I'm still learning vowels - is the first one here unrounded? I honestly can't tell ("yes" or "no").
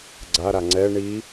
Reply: yes